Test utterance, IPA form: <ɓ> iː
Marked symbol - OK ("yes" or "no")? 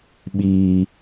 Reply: yes